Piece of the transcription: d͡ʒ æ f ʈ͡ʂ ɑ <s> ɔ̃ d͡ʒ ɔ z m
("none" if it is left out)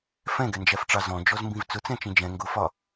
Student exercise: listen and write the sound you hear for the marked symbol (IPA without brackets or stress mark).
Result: z